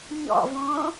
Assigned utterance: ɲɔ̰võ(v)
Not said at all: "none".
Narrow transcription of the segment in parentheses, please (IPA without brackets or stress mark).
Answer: none